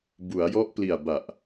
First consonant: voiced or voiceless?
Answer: voiced